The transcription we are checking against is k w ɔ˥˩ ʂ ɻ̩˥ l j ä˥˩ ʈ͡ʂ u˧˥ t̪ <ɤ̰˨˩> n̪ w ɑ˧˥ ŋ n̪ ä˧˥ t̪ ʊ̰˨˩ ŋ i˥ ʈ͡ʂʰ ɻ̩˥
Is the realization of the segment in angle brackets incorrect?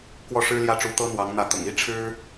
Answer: yes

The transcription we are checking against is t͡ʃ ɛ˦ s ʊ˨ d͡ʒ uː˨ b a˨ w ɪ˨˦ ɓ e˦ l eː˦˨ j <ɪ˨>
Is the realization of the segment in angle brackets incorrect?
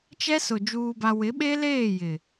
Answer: no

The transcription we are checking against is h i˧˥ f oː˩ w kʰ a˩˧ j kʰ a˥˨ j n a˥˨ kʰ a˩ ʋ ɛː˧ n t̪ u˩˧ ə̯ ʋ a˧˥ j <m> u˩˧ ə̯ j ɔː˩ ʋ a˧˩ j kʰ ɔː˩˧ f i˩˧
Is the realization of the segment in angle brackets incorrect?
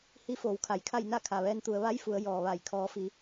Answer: yes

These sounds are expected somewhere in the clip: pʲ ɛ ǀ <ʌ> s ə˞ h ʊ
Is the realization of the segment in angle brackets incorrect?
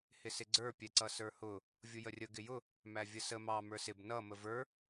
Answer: no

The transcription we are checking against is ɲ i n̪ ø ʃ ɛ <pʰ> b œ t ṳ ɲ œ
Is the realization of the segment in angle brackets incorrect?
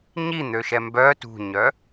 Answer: yes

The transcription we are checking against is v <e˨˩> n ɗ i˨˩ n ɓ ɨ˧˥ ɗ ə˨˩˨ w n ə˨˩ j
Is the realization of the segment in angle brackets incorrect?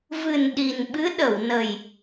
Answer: yes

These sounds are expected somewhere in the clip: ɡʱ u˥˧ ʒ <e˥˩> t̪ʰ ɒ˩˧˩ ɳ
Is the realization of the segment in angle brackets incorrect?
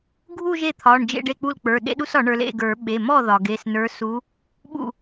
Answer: no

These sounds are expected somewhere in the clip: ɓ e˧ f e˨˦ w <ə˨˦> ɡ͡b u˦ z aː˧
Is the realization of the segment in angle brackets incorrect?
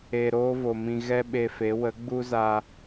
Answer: no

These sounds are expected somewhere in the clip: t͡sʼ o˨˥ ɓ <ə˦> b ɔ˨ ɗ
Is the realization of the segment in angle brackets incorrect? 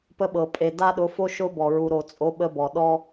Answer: no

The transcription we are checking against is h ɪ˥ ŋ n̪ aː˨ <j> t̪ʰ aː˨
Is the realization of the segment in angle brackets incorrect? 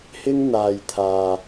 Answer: no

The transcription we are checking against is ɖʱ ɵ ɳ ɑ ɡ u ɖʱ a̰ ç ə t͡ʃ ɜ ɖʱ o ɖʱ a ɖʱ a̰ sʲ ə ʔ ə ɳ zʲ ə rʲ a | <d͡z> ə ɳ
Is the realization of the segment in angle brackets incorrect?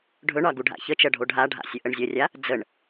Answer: no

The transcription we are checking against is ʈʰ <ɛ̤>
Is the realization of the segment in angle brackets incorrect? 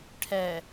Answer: yes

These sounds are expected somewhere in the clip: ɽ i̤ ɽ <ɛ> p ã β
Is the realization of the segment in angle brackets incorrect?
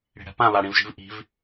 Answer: yes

